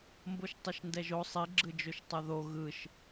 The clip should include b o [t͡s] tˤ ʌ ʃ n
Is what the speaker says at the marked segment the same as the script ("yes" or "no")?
no